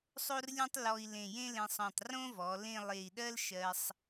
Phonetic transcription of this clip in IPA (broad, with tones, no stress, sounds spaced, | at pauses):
sˤ o˥ r lʲ ẽ˥ tˤ l ɔ˧ i̯ l ẽ˧˩ j ẽ˥ l ẽ˧ sˤ ɔ̃˧˩ tˤ r õ˥ v ɔ˩˧ l ẽ˥˧ lˠ e˧˩ i̯ ɗ ɜ˥ l ʃ ɜ˧ sˤ